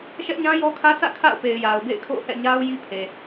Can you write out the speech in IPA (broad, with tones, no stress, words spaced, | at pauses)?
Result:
ʃɛ˦ʔɲã˦jɔ˦kʰä˦ sä̰˦˨ kʰa̰˦˨ʊ̯pe˨ɪ̯ ja˨ʊ̯bḛ˦˨ɪ̯kʰo̰˦˨ʊ̯ hɛ̰˦˨ɲa˦ʊ̯ ji˦pʰe˨